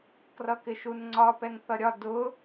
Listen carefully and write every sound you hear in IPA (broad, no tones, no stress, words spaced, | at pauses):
krʌkɪʃunŋ͡ǀɒ pɛŋθʌɾʲɒ dʊ